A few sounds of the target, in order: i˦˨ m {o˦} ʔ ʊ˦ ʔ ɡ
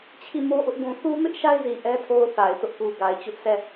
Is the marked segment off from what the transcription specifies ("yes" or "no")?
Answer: no